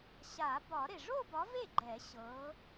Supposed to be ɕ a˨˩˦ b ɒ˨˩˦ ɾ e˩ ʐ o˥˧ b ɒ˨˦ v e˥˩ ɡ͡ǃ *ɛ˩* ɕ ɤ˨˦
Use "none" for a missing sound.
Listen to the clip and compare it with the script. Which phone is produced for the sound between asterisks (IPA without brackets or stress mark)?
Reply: ɛ˨˩˦